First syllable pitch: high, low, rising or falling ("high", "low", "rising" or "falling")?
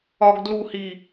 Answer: low